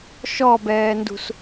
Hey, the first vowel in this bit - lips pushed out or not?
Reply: yes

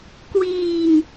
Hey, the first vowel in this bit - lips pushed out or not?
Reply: no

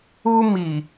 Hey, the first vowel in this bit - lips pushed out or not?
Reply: yes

